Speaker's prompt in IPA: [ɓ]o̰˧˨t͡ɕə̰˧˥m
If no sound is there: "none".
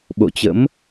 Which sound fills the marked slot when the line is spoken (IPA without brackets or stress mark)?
ɓ